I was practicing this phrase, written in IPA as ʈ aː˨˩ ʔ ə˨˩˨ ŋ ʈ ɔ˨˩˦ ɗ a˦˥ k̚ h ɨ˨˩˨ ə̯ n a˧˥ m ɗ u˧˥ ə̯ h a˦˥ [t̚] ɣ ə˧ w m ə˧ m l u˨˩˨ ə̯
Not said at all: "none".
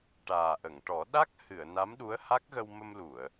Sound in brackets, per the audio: k̚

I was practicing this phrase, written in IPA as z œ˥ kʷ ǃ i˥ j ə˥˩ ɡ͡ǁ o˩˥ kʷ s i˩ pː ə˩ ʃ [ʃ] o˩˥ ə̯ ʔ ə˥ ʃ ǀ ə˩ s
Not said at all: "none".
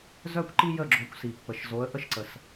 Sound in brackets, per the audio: z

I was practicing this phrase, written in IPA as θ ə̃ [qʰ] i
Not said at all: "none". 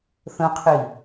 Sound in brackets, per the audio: qʰ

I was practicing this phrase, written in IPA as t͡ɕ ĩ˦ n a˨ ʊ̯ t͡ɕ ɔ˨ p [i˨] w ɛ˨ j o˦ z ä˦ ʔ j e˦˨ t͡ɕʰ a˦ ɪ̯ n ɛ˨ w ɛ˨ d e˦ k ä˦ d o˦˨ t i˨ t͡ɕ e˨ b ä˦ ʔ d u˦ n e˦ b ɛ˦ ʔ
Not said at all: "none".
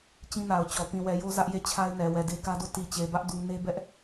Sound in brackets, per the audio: ĩ˨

